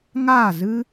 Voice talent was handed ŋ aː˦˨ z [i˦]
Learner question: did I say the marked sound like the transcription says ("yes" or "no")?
no